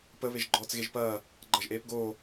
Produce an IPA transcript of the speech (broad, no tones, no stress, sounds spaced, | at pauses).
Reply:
p ə β e ʒ ɡ͡ǃ ɔː t͡s ɣ e ʒ p ɐː | ɡ͡ǃ ʌ ʒ ʔ eː p ɡ oː